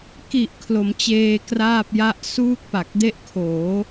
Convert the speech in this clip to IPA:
ki˨˩ʔ kʰlo˩˦mt͡ɕeː˧kraː˥˩p̚ja˥˩ʔ suː˥˩k̚pa˨˩k̚de˥˩ʔ kʰoː˩˦

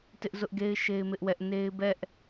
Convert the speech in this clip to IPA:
tɪ˦ʔzʊ˦ʔɡe˦ɪ̯ ʃe˦ɪ̯mɪ˦ʔwɛ˦ʔ ne˦ɪ̯ bɛ˦ʔ

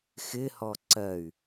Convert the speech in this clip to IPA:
xɪhɔ ǀɜy̯

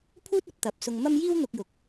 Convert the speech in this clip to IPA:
pʰuː˥t̚ɐ˨˥p̚t̪ɐ˨˥p̚ sʊ˧ŋmɐ˥m jiː˥wn̪ʊ˧k̚jʊ˨˥k̚

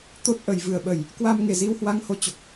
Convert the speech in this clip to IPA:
t̪o˦˥t̚ʔə˨˩jvɨ˨˩ə̯ɓə˨˩j | kwa˧mŋe˨˩ zi˧whwa˧ŋho˨˦t͡ɕo˨˩k̚

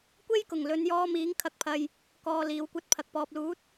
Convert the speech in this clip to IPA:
kʷe˥jkʊ˨˩ŋlɵ˨˧njɔː˧ miː˨˥ŋkʰɐ˨˥k̚pʰɐ˨j | kɔː˨ liː˨˧wkʷɐ˥t̚pʰɐ˨k̚ pɔː˨p̚luː˨˥t̚

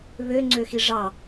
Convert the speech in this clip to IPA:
βøŋ͡ǀøxi ʐɑ

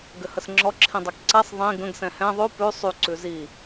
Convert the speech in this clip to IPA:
ɡɘhəsŋ͡ǁɔ ǁʰĩdˤɛkǀɛsˤ ðˤĩ ɡə̃ɡ sɛ̃hɛ̃ ðˤʉ pʉ sˤy ǀʉzi

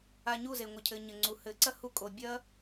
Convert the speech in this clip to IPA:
a˧ɲu˦˨ze˨ ŋʷɘ˨cʰɘ˨ ɲɘ˨ŋ͡ǀu˨ hɘ˨ǀɐ˦hu˧ kʼo˧ bʲɐ˦

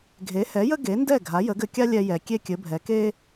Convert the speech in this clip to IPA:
ɡʱe˩˥hɛ˩˥jə˥ ɡe˩˥ndɛ˥˩ ɡʱa˩˥jə˩˥ɡɘ˧ kʲa˥lʲɛ˧jɛ˩ kʲe˥kʲɘ˩˥bʱɛ˩˥ ke˥

